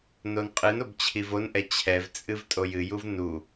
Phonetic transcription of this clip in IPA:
n o n qʼ ɨ n o b t͡ɕʰ i v o n ʔ ɛ t͡ɕʰ ɛ v t͡sʼ ɨ v tʼ o j ɨ j u v n u

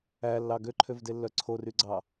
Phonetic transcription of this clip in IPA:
æ lː ɑ ɡ ø ǃʰ ø v d e lː œ ǀʰ o r y ɡ͡ǀ ɑ

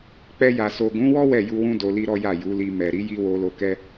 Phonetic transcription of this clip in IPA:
k͡p ɛ˧ j a˨ s o˨ ɡ ũ˨˦ w ɔ˦ w ɛ˦˨ j u˧ w ũ˦ d o˧ l i˦ ɾ ɔ˦ j a˦˨ j u˨˦ l i˧ m ɛ˨ ɾ i˨˦ j i˧ w o˧ l o˧ k ɛ˦

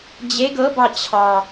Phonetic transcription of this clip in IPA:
d͡ʑ e ɡ ɤ b ɑ t͡ɕʰ ɑ

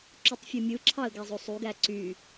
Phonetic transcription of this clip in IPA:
ǁ u tˤ fʲ ɯ mʲ ɯ ǁʰ ɑ ə̯ ɡ æ zˤ o sˤ u ɡ æ ǀ y

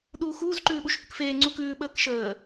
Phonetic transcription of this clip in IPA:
ɗ uː x uː z ǃ ʉː ɓ u ʃ h ʉ k f eː ŋ͡ǀ u k ʉː ɓ əː k ʃ əː

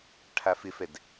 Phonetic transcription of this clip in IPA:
ʈʰ a f ɪ f ɛ d

